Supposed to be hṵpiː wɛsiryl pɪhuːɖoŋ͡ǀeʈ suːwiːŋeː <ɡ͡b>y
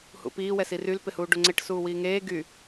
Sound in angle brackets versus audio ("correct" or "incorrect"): incorrect